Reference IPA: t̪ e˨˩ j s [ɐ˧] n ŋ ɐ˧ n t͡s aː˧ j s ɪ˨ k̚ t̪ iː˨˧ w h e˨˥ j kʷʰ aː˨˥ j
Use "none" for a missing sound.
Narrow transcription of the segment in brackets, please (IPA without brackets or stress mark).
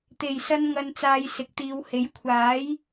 ɐ˧